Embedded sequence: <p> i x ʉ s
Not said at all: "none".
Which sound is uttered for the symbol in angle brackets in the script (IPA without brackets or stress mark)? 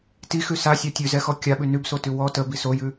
t